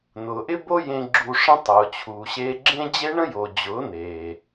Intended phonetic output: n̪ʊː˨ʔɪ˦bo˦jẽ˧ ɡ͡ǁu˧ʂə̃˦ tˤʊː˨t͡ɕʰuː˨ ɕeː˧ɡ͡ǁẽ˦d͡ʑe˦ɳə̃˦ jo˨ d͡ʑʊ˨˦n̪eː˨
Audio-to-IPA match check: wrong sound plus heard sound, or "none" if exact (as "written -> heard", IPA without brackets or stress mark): none